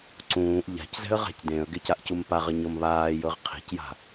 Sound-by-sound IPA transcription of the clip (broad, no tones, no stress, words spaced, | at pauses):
ǀũːʔ ʎa̤czɛ̤ə̯ ʁa̤cdẽə̯ɡec aʔcumpaʁə ɲɤmβaːjɤʁ qʰi̤cja̤